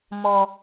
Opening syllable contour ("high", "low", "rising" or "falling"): high